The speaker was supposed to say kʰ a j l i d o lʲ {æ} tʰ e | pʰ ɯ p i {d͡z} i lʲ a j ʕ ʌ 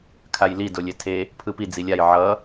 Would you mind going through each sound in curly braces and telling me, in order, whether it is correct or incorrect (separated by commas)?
incorrect, correct